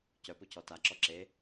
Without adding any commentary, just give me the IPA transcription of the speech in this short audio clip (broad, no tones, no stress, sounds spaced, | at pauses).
c œ p u c ɔ t a ǁ ɔ ǁ e